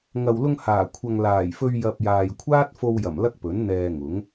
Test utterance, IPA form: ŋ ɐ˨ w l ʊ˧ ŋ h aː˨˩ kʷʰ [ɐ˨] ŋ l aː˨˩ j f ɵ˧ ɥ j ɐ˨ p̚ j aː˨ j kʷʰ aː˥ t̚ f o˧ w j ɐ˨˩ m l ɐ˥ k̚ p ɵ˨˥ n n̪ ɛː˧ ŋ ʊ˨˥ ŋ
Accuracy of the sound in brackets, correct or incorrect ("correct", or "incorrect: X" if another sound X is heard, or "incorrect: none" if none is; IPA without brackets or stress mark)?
correct